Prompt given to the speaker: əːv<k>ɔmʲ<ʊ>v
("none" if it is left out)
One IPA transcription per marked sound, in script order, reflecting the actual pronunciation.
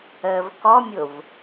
k, ʊ

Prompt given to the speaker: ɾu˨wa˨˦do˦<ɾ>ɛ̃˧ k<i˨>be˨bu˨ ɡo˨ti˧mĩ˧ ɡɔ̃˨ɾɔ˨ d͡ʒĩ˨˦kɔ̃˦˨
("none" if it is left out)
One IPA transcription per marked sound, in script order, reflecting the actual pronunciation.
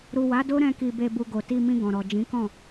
ɾ, i˨

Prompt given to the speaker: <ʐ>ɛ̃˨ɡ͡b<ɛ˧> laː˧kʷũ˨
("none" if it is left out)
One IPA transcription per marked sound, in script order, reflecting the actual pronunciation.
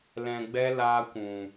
l, ɛ˧

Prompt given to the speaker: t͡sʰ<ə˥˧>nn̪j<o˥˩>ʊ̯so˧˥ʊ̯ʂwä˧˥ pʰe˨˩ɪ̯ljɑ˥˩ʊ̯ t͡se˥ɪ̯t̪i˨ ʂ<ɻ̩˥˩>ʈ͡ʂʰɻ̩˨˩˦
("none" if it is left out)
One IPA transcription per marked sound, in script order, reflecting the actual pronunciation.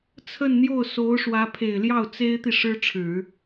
ə˥˧, o˥˩, ɻ̩˥

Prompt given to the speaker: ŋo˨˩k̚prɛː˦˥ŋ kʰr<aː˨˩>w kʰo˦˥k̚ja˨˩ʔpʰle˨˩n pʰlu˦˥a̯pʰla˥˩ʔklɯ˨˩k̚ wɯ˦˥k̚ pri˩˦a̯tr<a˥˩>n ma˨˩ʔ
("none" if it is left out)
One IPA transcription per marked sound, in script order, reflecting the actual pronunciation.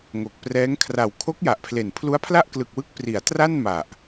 a˨˩, a˥˩

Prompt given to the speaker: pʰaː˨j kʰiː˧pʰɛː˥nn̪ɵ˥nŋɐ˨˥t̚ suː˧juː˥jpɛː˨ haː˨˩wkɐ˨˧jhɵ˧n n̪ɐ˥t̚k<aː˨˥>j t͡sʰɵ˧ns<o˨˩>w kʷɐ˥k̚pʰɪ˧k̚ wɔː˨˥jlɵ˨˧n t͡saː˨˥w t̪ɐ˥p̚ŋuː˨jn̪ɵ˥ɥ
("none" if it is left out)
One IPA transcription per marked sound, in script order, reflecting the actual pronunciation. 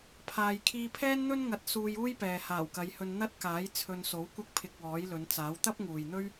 aː˨˥, o˨˥

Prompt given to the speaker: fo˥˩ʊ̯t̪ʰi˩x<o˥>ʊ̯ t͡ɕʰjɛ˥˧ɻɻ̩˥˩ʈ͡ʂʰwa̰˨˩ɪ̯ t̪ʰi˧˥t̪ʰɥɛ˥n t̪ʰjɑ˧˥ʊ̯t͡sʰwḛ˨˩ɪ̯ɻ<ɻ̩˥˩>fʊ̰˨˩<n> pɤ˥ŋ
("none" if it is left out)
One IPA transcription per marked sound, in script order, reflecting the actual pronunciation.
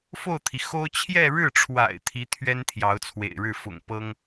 o˥, ɻ̩˥˩, ŋ

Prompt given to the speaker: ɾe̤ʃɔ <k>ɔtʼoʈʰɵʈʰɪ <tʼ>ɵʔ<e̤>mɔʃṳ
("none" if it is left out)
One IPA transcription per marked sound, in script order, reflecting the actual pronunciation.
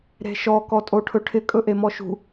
k, kʼ, e

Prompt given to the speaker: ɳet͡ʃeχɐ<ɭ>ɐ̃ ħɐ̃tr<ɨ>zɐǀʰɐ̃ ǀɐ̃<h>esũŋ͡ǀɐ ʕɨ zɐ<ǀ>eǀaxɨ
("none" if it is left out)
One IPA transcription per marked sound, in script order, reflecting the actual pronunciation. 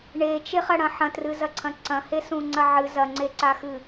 ɽ, ɨ, h, ŋ͡ǀ

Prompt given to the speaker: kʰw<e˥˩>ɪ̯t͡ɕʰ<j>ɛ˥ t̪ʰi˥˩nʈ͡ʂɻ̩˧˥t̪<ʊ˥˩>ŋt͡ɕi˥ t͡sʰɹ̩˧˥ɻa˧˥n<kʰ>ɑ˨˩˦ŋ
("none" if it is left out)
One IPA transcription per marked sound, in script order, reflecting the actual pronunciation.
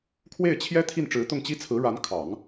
e˥˩, j, ʊ˥˩, kʰ

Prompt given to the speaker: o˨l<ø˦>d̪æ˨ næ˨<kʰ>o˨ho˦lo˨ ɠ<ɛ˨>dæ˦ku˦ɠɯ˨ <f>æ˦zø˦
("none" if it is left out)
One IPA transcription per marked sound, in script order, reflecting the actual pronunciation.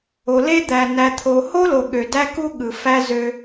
e˦, t̪ʰ, ø˨, f

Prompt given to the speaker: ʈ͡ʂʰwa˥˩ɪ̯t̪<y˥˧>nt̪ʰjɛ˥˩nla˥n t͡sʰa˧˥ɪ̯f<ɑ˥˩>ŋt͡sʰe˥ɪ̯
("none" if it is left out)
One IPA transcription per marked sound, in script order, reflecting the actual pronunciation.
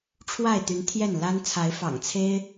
y˧˥, ɑ̰˨˩

